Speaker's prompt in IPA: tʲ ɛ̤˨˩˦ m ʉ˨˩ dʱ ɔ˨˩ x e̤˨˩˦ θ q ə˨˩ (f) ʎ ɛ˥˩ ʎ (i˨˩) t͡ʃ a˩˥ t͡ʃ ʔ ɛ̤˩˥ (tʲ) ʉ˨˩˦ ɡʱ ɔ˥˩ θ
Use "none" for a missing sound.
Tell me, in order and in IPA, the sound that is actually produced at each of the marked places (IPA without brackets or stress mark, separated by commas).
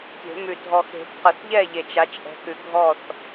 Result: θ, e˨˩, k